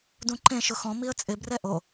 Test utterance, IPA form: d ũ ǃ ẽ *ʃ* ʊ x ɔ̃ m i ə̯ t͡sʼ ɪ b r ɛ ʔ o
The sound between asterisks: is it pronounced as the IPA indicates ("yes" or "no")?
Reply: yes